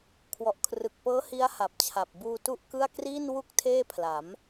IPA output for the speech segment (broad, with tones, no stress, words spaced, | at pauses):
kʰwɔ˨˩ʔ kʰrɯ˨˩k̚pɤː˦˥ hi˦˥a̯ ha˨˩p̚t͡ɕʰa˨˩p̚ buː˧tu˥˩ʔkɯ˥˩a̯ kriː˥˩n wu˥˩k̚ tʰeː˥˩pʰla˩˦m